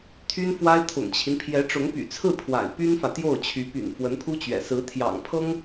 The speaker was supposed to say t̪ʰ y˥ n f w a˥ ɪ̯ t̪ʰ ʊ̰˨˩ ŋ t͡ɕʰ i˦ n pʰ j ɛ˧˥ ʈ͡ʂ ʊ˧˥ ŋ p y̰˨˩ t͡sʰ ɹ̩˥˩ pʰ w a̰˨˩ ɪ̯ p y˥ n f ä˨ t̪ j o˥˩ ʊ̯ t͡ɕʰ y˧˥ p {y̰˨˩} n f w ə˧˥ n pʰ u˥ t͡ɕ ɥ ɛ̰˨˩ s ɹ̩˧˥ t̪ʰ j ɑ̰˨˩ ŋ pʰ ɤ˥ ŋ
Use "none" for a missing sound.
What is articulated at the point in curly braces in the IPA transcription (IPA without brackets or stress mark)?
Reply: y̰˨˩